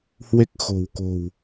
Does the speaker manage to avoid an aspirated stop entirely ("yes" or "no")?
yes